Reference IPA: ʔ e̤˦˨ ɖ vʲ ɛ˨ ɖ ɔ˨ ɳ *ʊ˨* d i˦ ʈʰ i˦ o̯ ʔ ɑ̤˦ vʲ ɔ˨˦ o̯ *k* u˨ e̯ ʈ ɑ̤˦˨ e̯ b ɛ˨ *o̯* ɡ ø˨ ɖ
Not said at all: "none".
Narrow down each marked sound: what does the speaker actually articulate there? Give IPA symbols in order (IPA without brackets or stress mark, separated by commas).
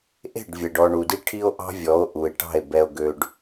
u˨, ʔ, o̯